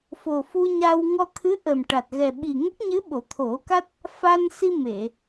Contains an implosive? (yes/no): yes